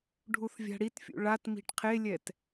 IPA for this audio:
ɖʱ u θ vʲ a̤ ɽ i t fʲ ṵ ɭ a t m i̤ ʈ qʰ e lʲ ɛ t

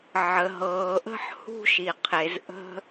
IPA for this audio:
ʕ ə˩ ɦ ɤː˩ ʔ ə̤˦ ħ h ṳ˦ ʃ i˩ qʰ e˩ z ʔ ə̤˦

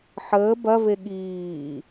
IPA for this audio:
ħ əː b ɐ v e ɠ iː

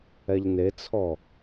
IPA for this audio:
ɛ ʎ n e t͡sʰ ɔ

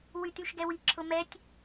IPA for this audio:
w y t y ʃ ɡ ɛ w i ǁʰ ʊ m ɛ tʲ

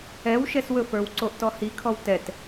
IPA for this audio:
ɛ w ʃ ɛ s w ɵ f ə˞ w ǀ o ʔ t ɔ h i kʰ ɔ w t ɛ t

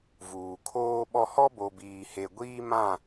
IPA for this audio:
v uː˨ kʰ oː˦ ɓ ɔ˦ h ɔ˦ b o˨ b iː˨ h e˨ ɡʷ iː˦ m ã˦˨

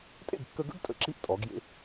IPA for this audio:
tʼ ḛ˥˩ ɡ kː ə˧ ɡ ə̰˥ ɡ tʼ ə̰˥˩ ǁ i˥ ʔ tʼ ɔ˩˥ ɡ j ḛ˧

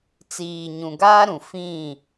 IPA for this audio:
t͡s iː˨ ɲ ũ˨ ɡ aː˦ ɾ ũ˨ f ĩ˦˨

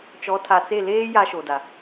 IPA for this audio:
t͡ʃ ɔ˨˦ tʰ a˨ t͡s e˦˨ l eː˦ j a˦ ʃ o˨ d a˨

